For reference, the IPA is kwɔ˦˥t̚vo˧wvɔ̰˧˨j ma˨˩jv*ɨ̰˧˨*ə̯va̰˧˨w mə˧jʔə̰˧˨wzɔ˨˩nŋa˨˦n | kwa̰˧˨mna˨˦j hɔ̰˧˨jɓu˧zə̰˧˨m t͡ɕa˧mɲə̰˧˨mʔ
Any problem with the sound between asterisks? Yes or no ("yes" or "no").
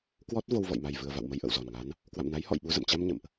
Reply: yes